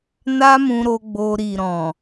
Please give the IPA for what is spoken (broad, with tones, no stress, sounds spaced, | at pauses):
n a˦ m ũ˧ ɾ o˧ ɡ͡b o˧ ɾ i˨ ɾ ɔ̃˨